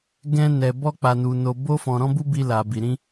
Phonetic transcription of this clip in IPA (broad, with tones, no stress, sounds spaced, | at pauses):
ɡ ɛ̃˧ n ɛ˨ b ɔ˧ k͡p a˨ n u˨ n o˨ b o˧ f ɔ̃˨ ɾ ɔ̃˧ b u˧ b i˧ l a˨ b i˨ ɾ ĩ˧